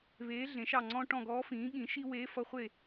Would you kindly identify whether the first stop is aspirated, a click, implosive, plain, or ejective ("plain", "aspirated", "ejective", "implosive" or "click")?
click